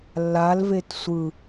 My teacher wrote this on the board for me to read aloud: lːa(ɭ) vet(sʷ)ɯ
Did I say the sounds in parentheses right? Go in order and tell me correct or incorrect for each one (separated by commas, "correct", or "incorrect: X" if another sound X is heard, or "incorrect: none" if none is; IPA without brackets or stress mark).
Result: incorrect: l, correct